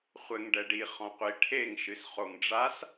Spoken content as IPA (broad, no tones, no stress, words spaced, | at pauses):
χʷɘŋ ɖɛɖi χɔ̃qʷi ʈʰeŋ ʃɨsχoŋɖ͡ʐas